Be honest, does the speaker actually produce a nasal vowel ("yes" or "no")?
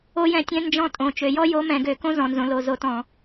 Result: yes